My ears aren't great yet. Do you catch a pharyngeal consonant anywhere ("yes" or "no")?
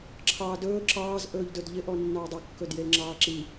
no